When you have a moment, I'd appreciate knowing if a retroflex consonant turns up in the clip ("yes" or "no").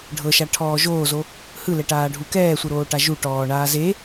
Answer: yes